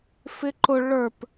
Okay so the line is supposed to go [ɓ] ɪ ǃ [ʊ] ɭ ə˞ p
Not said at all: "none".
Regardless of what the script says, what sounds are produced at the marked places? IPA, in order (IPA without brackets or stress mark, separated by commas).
f, ʊ